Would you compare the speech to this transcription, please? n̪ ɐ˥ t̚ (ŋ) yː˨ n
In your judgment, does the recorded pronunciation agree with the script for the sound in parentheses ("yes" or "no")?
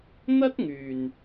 yes